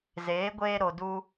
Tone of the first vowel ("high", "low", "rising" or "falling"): rising